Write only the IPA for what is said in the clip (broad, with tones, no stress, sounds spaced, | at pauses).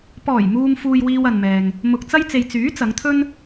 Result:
p ɔː˨˩ j m uː˨ m f uː˨ j w iː˧ w ɐ˨ n m ɛː˨ ŋ | m ʊ˨ k̚ t͡s ɐ˥ j t͡s e˨ j t͡s yː˨˥ t͡s ɐ˨˧ ŋ t̪ʰ ɵ˥ n